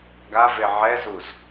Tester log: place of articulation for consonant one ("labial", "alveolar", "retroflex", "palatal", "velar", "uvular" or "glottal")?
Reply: velar